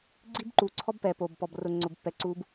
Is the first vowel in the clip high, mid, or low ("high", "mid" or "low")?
high